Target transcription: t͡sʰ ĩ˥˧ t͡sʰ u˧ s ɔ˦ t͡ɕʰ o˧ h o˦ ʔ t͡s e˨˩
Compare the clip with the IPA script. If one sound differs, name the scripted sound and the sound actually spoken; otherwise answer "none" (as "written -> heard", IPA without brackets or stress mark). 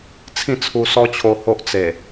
none